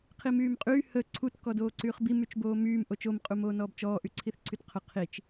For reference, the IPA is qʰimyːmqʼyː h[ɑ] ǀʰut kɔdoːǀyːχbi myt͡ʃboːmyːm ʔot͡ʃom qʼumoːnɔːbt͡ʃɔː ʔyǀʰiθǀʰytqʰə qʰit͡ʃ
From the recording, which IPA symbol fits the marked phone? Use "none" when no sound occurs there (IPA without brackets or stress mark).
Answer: ə